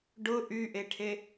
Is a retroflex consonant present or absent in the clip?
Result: present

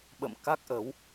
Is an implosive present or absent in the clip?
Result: present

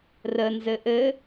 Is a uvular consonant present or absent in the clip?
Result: absent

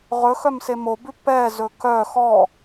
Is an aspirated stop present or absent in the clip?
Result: absent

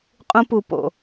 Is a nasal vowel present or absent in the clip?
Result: present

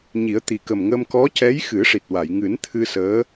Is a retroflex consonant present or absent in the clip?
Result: present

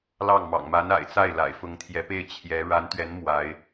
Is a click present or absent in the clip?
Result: absent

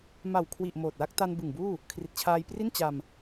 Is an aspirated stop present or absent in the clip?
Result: present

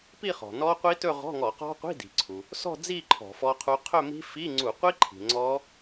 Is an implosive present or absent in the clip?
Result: absent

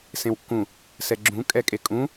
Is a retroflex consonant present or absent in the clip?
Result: absent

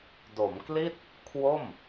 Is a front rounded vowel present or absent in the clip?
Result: absent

